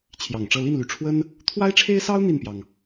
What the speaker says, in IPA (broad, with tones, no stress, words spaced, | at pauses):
t͡ɕʰjɑ˨˩ŋʈ͡ʂɤ˥˧ li˥˩nly˧˥ʈ͡ʂʰwə˥n | t̪ʰwa˥ɪ̯ʈ͡ʂʰe˥ɪ̯sɑ˥ʊ̯ n̪i˥˩npjɑ˩ŋ